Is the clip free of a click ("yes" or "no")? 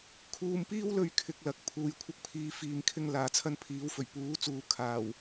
yes